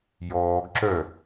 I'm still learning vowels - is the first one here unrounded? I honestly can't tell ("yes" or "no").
no